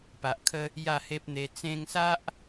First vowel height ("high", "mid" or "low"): low